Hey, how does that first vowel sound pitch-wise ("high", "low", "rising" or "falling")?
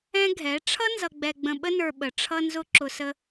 high